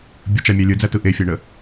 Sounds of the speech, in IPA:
bʲ ə t͡ʃ a mʲ æ lʲ ɯ d͡z æ t ɯ ʔ e fʲ æ ɳ ə

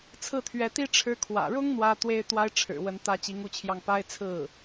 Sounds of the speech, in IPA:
t͡sʰ ɹ̩˥˩ t̪ʰ ɥ ɛ˧˥ t̪ i˥ ʈ͡ʂʰ ɻ̩˥ kʰ w ä̰˨˩ ɻ ʊ˥ ŋ n̪ w ä˥ t̪ w e˥ ɪ̯ t̪ w a˥ ɪ̯ ʈ͡ʂʰ ɻ̩˨˩ w ə˧˥ n t̪ ä˥ t͡ɕ i˧˥ ŋ u˥˧ t͡ɕʰ j ɑ˥˩ ŋ p a˥ ɪ̯ t͡sʰ ɹ̩˥˩

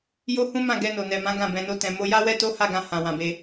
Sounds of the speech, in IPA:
j o˦ h ũ˦ m ã˦˨ ɡ ɛ˧ n o˨ n ɛ˨ m ã˨˦ ɡ ã˦˨ b ɛ̃˧ n o˦ t ɛ̃˧ m o˧ j a˦ w ɛ˦ t o˦ h a˦˨ ɡ ã˧ h ã˨ w ã˨ b e˧

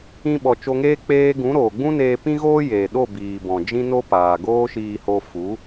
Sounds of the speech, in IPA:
ĩ˦ ɓ ɔ˨ t͡ʃ o˧ ŋ eː˦ k͡p eː˦ ɡ ũ˨˦ ɾ oː˨ ɡ͡b ũ˦ n eː˧ p ĩ˦ ɣ oː˦ j eː˨ ɗ o˦˨ b iː˨ b ɔ̃˨ d͡ʒ ĩ˦ n o˦ p aː˨ ɡ oː˦ ʃ iː˧ h o˧ f u˨˦

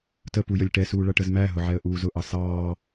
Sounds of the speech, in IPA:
t ə p u j ə lʲ ʈ ɛ s uː ɭ ʌ ʈ ə z m æ ɦ ʊ ʕ ɛ ə̯ ʔ uː z ʊ ʔ ɑ s ɑː

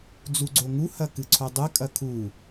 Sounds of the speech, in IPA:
d͡z u ɡ͡ǀ o ŋ u h ɐ k ɨ ǀʰ o dˤ ɨ kʼ ɐ kʰ u

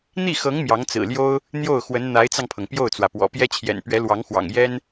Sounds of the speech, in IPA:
n̪ i˥˩ x ɤ˧˥ ŋ m j ɑ˧˥ ŋ t͡s ɹ̩˨˩ l j o˥ ʊ̯ | n̪ j o˥˩ ʊ̯ x w ə˧˥ n n̪ a˧˥ ɪ̯ t͡s ɑ˧ ŋ pʰ ɤ˩ ŋ p j o˥˩ ʊ̯ t͡s w ä˩ p w ɔ̰˨˩ p j ɛ˥ t͡ɕʰ j ɛ̰˨˩ n p ɥ ɛ˧˥ l w ɑ˧˥ ŋ x w ɑ̰˨˩ ŋ j ɛ˥ n

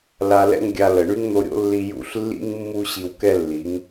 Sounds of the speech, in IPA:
l a˧ l ɛ̰˦ ŋ ɡʲ a˧ l ə˨ ɳ y˦ ŋ n̪ o˧ ɾʲ o̰˦ lː i˧ j ṵ˦˨ ɬ lː ḭ˦ ŋ mː u˦ ɕ i˧ w k ɛ˦ lː i˨˦ ŋ

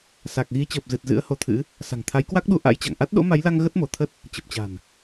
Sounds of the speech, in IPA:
s a˨˩ k̚ ɣ i˨˦ t͡ɕ əː˨˩ p̚ z ɨ˨˩ t̚ z ɨ̰˧˥ ə̯ h o˨˦ t̪ʰ ɨ̰˧˥ | s a̤˨˩ ŋ t̪ʰ a˨˦ j k w a˦˥ k̚ ɗ u˧ ʔ a̰˧˥ j t͡ɕ a̰˧˨ ŋ ʔ a˦˥ t̚ ɗ o̰˧˥ m a˨˦ j l a˧ ŋ ɣ ə˦˥ t̚ m o˧˩ t̪ʰ ə˦˥ t̚ | t͡ɕ ə˨˩ p̚ t͡ɕ a̤˨˩ n

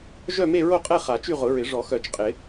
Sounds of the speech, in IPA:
ʒ œ˥˧ m e˥˧ ɹ o˥˧ qʼ ɛ˥˧ χ a˨˩˦ t͡ʃ y˥˧ ʁ ʊ˨˩˦ ɹ ɪ˨˩˦ ʐ ɔ˨˩˦ x œ˨˩˦ t͡ʃ qʼ ɪ˨˩˦

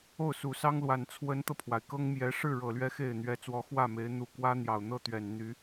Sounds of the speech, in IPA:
o˥˩ ʊ̯ s u˨˩ s ɑ˥ ŋ l w a˨˩ n t͡sʰ w ə˧˥ n t̪ ɤ˧ pʰ w a˩ ɪ̯ k ɤ˥ ŋ m j ɛ˧˥ ʂ ɻ̩˥˩ ɻ ɤ˨˩ l ɥ ɛ˧˥ x e˥˩ ɪ̯ n̪ ɥ ɛ˧˥ t͡s w ɔ˧˥ x w ä˥˩ m e˧˥ ɪ̯ n̪ u˨˩ k w ä˥ n̪ j ɑ˨˩ ʊ̯ n̪ ɤ˥˩ t̪ ɥ ɛ˨˩ n n̪ y˧˥

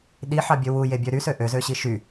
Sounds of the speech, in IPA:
ɗ i ħ ɑ bʲ ø w u j e bʲ ø ɾ y s ø ʔ ø z ø ɕ i ʃ y

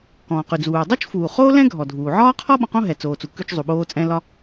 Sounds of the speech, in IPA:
k ɔ̃ː˩ q ʉ˩ d͡z uː˩ dˤ o˥ t͡ʃ f uː˩ χ oː˥ l ɛ̃˥ ɡʱ ɔ˩ dʱ uː˩ ʕ ɒː˥ qʰ ɔ˥ ɓ ɔ̃˧ q õ˥ ɦ ɛ˩ t͡s oː˩ t͡s u˩ k ʉ˧ t͡ʃ zˤ u˩ ɓ oː˧ t͡sʼ ɛ̃˧ l ɒ˧

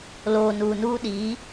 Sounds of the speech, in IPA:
l oː˨ n uː˨ n uː˦ ɗ iː˨˦

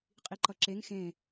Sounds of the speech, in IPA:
qʼ i ǃ ʌ ǁ e ŋ x ẽ

